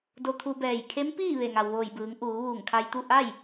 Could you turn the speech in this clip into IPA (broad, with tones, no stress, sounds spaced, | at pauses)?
d o˧ t̪ʰ u˧ b ɛː˧˩ j kʰ e˧˥ m p iː˥˨ ʋ e˧˩ ŋ a˩ w ʋ oː˧˩ j b ɯː˩˧ ŋ ʔ uː˩˧ ʋ uː˧˩ ŋ kʰ a˧ j t̪ u˥˨ ʔ a˥˨ j